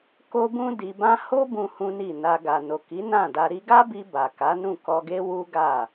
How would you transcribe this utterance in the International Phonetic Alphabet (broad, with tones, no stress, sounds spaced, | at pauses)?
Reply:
k o˦ b ũ˦ d i˧ b ã˦ h o˦ b ũ˦ h ũ˦ n i˦˨ n a˧ ɡ a˨ n o˨ k i˨˦ n ã˦˨ d a˧ ɾ i˧ ɡ a˦ b i˧ b a˨ k a˨˦ n ũ˦˨ k ɔ˧ ɡ e˦ w u˦ ɡ a˦˨